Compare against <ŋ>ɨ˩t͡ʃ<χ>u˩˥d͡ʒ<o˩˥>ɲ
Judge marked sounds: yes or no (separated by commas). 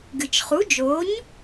no, yes, yes